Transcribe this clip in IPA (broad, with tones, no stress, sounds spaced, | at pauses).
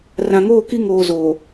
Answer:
r ã˨ ŋ oː˦˨ k i˦ ŋ oː˦ z oː˨